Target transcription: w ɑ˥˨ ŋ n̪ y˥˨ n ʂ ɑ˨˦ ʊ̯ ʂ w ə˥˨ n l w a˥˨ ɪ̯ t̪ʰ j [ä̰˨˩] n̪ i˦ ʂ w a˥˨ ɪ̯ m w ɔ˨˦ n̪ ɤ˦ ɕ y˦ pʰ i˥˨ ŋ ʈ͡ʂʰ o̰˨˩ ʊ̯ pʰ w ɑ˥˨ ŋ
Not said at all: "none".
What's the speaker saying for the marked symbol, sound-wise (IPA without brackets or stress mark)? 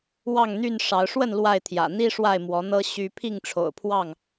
ä̰˨˩